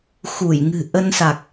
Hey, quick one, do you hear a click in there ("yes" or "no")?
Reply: no